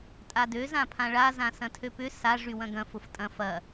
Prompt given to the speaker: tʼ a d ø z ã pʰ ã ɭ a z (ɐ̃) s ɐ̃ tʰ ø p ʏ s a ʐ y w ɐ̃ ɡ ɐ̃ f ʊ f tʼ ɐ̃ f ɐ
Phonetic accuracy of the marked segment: incorrect: ã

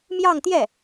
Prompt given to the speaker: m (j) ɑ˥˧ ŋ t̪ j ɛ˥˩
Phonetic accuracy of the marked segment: correct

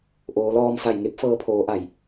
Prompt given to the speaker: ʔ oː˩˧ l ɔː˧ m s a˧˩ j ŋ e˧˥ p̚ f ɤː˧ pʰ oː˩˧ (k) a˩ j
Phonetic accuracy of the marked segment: incorrect: ʔ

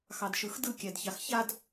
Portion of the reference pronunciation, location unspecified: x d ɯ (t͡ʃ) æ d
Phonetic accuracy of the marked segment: incorrect: kʲ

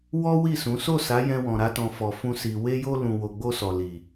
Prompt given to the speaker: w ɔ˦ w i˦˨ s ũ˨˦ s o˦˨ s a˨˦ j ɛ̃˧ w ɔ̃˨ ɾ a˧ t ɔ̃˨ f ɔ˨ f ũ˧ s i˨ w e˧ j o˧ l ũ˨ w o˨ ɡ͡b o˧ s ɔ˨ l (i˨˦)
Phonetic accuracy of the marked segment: incorrect: i˨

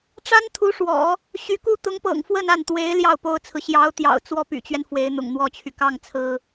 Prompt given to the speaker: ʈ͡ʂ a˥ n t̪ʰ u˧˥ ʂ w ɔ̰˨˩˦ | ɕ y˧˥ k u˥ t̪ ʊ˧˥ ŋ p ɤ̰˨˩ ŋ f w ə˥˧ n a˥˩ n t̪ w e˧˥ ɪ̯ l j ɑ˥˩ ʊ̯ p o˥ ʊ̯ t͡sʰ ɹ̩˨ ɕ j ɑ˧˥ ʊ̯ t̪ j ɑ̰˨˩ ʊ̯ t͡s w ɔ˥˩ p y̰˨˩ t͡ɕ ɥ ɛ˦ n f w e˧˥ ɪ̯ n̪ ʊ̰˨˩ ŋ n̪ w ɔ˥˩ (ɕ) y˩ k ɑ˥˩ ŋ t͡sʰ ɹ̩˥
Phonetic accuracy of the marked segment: incorrect: t͡ɕʰ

